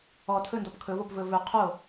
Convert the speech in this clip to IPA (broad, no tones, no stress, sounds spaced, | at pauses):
ɔ tʰ ɵ n d ɔ p kʰ ɵ v o p v ɵ v ɵ qʰ o